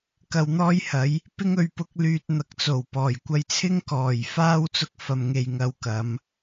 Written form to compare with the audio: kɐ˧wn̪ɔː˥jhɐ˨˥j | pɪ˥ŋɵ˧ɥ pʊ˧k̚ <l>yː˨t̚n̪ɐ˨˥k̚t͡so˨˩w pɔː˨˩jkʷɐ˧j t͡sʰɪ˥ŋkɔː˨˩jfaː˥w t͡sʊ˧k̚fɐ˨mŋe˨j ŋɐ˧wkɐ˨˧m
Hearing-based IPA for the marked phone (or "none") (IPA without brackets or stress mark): l